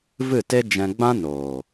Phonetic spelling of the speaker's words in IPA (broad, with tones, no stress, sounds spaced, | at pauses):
v ɨ˦˨ t e˦ d͡ʒ ɛ̃˧ ɡ͡b ã˦ n oː˨